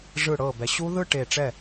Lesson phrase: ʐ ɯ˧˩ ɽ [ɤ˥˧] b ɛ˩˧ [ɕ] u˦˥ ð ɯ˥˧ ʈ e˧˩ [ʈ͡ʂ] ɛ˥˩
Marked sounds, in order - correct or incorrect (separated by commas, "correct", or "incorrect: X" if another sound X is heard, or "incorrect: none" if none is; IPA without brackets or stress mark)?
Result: incorrect: ɤ˧˩, correct, correct